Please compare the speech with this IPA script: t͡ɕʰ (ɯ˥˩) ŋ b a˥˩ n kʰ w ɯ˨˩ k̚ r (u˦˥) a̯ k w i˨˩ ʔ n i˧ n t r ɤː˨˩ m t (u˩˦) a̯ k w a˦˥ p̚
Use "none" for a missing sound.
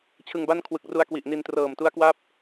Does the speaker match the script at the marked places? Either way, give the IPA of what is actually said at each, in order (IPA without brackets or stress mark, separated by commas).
ɯ˧, u˧, u˦˥